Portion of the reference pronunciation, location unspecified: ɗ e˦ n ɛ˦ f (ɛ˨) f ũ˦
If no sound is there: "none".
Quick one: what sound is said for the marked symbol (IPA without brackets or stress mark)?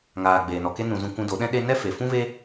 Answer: e˨